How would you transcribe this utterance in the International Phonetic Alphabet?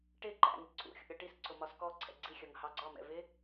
ʈ ɪ ǃ æ̰ ŋ ɪ ǀʰ ṵ xʲ ṵ ɾʲ ɒ ʈ i s ǀ ʊ m ɒ s k ɔ ǀʰ ɛ̰ ɡ͡ǀ i xʲ ʌ ŋ h ɑ ɡ͡ǀ ɒ m ɛ̰ v ɪ

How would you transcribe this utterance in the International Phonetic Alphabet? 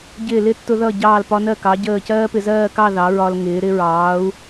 ɟ ɪː˧˩ l ɪ˥˧ tː ʊ˧ ð ʌ˧˩ ɟ ɑː˧˩ l p ɒ˧ n ɜ˧˩ k ɑ˩˧ ɟ əː˧˩ c ɜː˥ p ɪ˧ z ɜː˥˧ k ɑ˥˧ ð ɑ˩˧ ɹ ɒ˧ l ŋ ɪː˩˧ ɾ ɪ˧ ɹ ɑː˩˧ u̯

